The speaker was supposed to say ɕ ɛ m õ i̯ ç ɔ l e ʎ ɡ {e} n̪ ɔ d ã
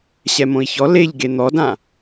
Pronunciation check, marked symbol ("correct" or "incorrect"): correct